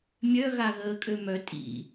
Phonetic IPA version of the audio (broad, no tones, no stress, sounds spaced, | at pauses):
mʲ œ ɣ a ɣ əː kʼ ø m œ tʼ ḭ